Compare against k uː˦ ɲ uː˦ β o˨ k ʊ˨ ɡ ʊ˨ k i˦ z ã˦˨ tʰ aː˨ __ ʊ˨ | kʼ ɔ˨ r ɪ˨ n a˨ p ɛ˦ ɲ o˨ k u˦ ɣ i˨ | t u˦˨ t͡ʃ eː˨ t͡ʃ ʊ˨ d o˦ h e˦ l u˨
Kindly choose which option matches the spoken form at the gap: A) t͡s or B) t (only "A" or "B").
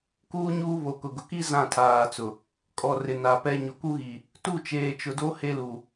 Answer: A